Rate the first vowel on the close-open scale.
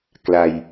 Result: open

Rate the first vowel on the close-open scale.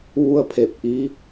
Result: close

